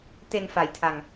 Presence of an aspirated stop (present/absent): present